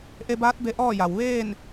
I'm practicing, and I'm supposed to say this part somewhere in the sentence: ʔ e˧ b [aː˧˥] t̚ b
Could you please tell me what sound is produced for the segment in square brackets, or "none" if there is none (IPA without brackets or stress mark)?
aː˧˥